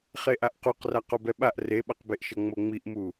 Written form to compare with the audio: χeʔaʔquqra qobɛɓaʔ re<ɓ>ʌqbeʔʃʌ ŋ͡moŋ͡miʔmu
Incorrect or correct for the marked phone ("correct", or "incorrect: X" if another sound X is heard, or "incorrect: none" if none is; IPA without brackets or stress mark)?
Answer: correct